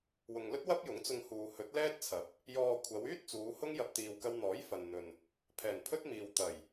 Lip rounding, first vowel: rounded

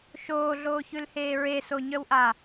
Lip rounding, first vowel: rounded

